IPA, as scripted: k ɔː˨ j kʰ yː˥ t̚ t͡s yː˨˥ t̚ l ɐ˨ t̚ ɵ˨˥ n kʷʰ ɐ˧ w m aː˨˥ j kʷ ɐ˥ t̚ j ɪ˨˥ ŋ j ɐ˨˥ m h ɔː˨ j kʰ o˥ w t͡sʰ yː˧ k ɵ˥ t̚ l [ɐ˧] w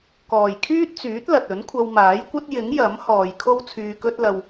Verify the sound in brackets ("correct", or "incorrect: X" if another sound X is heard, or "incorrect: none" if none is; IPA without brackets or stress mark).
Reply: correct